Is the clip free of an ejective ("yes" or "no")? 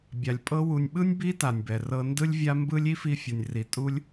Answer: no